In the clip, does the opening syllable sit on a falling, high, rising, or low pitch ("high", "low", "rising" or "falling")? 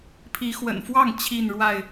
rising